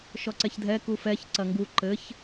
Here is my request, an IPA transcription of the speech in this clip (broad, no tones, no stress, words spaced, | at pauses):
ʃɔǀɛçdʱɛ kufɛç ǀɐŋɡu ǃɘç